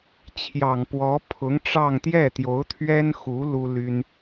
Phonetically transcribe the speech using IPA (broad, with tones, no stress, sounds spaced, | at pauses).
t͡ɕʰ j ɑ˨˩ ŋ p w ɔ˧˥ pʰ ʊ˧˥ ŋ ʈ͡ʂ ɑ˥˧ ŋ t̪ j ɛ˥˩ t̪ j o˧˥ ʊ̯ t̪ʰ ɥ ɛ˥ n x u˧˥ l u˥ l y˥ n